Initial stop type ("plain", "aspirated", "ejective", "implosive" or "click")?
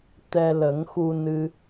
plain